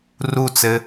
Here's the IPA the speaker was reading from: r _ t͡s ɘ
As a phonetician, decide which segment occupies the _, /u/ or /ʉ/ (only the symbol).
u